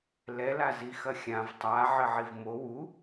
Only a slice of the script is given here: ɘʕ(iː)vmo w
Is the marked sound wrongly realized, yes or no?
yes